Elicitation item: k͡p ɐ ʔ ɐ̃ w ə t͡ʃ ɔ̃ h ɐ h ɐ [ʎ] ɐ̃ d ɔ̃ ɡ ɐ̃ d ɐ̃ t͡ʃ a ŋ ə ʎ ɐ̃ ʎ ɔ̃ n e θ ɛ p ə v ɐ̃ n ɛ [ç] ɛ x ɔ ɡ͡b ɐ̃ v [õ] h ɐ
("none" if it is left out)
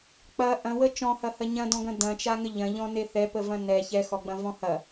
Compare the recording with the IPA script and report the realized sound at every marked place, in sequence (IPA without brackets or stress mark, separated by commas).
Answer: ɲ, ç, ɔ̃